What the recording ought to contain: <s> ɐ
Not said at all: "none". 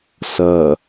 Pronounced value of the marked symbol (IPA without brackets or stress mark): s